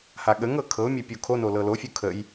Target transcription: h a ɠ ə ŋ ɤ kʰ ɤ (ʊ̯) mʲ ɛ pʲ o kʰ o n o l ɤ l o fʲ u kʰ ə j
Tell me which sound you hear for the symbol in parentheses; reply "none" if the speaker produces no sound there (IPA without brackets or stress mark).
ʊ̯